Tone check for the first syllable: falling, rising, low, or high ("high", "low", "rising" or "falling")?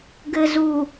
low